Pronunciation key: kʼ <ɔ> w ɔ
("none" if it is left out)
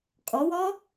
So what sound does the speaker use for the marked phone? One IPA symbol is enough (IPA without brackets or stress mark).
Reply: ɔ